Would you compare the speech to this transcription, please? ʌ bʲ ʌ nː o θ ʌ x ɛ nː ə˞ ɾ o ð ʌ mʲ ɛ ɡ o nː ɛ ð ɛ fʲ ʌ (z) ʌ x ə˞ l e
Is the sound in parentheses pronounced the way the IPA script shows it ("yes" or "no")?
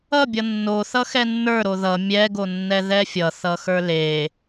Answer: no